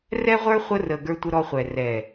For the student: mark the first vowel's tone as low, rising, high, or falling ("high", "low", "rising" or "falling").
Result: high